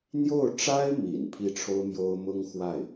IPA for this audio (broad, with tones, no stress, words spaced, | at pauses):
n̪jo˥˩ʊ̯ʈ͡ʂa˥ɪ̯mḭ˨˩n pʰi˥˩ʈ͡ʂʰo˥ʊ̯mjo˥ʊ̯ mʊ˥ŋxwa˥˩ɪ̯